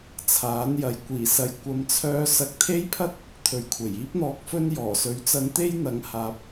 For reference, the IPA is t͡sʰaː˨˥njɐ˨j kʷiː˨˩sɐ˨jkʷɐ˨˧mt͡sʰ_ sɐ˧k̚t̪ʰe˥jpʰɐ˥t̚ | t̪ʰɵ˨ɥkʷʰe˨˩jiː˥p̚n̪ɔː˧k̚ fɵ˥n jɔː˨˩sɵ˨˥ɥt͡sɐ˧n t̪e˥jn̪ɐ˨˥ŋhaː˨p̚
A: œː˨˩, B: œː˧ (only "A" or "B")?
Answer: B